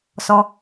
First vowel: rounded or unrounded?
rounded